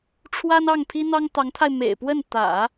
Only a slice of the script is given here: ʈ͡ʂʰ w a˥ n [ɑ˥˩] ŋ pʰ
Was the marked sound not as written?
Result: no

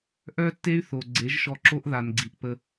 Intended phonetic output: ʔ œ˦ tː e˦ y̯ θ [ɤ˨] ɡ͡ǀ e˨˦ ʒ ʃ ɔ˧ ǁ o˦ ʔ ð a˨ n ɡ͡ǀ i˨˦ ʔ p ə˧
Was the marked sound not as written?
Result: yes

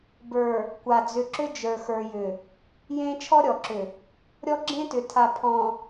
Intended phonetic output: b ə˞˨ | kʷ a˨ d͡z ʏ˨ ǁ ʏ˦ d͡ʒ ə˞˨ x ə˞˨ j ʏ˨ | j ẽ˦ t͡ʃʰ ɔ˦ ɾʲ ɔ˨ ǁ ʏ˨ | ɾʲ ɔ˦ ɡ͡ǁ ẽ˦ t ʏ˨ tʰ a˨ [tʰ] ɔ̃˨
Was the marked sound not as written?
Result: yes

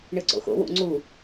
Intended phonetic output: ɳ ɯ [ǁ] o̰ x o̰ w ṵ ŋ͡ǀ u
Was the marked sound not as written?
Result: yes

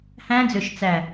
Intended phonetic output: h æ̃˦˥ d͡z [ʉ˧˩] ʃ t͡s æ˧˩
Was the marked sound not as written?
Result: yes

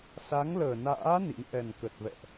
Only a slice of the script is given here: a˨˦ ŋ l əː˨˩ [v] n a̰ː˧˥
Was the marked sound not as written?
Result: yes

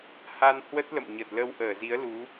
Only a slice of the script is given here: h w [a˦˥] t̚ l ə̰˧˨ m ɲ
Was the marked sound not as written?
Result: yes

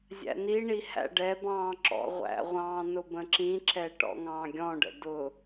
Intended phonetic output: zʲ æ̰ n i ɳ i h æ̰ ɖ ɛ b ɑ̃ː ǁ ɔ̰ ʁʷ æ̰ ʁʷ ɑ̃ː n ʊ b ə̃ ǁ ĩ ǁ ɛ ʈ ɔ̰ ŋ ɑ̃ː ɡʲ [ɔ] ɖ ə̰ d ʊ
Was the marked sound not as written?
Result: yes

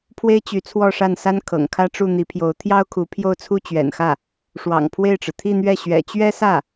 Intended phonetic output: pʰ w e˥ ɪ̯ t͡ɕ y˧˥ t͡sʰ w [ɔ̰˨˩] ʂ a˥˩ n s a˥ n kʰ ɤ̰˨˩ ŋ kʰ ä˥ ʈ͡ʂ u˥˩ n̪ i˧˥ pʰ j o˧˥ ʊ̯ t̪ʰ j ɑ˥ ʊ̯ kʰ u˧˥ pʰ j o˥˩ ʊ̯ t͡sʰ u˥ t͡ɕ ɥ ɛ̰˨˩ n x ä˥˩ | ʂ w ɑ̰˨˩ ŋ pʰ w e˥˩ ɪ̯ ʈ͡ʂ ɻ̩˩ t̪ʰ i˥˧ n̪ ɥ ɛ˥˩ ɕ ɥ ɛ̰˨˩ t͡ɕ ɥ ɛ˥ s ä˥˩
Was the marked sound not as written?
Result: yes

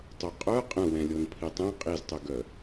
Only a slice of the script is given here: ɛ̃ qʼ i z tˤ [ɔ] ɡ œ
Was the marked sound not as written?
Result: yes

